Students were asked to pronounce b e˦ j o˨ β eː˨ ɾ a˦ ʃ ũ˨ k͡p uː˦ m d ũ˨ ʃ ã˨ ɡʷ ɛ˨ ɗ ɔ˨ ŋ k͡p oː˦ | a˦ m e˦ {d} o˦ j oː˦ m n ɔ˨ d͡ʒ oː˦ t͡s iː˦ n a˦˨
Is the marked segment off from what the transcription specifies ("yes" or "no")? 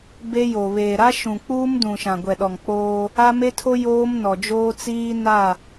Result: yes